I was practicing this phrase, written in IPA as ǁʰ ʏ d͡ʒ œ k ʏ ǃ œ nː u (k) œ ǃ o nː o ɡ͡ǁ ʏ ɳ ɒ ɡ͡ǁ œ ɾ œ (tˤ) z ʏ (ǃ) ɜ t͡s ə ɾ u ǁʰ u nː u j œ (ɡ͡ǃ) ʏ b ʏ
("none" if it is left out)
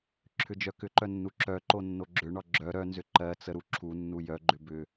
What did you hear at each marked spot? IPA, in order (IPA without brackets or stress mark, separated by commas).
ǁ, n, ǃ, ɡ͡ǃ